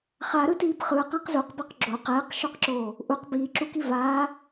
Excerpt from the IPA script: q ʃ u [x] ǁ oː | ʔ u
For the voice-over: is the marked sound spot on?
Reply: no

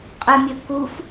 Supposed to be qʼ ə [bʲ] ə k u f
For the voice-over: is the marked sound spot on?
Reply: no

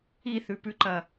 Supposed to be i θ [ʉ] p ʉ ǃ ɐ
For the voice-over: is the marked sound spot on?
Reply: yes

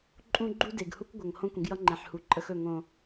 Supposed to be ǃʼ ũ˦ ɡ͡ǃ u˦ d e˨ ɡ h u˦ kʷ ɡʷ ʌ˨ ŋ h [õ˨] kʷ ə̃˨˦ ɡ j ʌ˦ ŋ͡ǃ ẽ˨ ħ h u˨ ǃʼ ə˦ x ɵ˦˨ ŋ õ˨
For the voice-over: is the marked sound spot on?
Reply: no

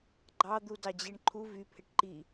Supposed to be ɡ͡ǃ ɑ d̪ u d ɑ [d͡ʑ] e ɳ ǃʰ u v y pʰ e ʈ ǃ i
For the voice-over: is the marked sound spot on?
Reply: yes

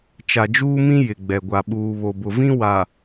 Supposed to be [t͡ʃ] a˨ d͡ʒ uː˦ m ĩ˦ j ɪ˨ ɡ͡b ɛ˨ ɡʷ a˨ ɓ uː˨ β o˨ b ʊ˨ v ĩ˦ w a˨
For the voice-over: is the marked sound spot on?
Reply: yes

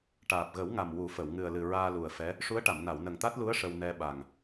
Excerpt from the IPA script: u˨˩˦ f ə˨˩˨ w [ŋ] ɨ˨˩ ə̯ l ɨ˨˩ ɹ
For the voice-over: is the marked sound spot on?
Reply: yes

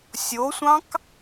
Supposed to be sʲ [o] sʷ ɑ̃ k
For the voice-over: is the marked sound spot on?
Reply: yes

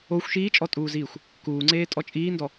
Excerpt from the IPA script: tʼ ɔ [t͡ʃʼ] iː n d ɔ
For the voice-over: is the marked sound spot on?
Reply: yes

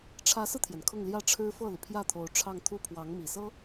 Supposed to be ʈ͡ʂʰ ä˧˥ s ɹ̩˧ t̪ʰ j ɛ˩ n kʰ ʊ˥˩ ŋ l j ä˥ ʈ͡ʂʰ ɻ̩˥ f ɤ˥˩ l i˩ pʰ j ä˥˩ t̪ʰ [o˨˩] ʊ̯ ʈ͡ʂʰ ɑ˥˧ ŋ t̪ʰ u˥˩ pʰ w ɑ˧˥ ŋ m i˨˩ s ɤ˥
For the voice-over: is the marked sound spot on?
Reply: no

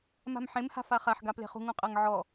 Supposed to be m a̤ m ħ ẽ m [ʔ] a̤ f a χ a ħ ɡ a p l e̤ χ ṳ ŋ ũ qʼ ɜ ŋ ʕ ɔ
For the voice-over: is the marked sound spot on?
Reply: no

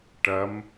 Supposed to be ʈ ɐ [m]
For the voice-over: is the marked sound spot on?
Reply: yes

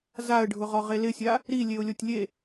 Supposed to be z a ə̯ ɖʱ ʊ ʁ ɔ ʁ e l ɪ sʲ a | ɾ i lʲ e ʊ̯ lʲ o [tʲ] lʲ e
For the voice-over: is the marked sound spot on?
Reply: yes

